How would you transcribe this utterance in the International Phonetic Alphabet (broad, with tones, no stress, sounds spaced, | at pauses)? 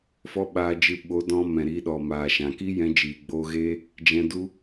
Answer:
f ɔ˦ ɓ aː˧ d͡ʒ ɨ˧ ɓ o˨˦ d ɔ̃˧ m ɛ̃˨ ɾ i˨˦ ɗ ɔ˨ m aː˨ ʃ ã˨ k i˦ j ɛ̃˧ d͡ʒ iː˨ ɡ͡b oː˧ ɣ eː˦ | d͡ʒ ɛ̃˧ d u˦